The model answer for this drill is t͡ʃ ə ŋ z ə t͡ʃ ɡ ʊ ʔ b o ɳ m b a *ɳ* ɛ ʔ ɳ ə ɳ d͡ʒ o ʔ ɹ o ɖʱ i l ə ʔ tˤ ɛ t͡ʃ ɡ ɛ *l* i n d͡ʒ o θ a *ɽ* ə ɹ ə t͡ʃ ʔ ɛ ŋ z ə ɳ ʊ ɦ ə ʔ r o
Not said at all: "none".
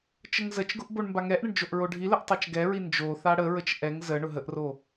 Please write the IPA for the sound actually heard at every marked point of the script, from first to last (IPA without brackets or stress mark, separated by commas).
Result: ŋ, ɹ, ɽ